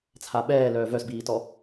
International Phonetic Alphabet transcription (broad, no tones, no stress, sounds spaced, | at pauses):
t͡sʰ a ɓ ɛː l œː v œ s b iː t ɔ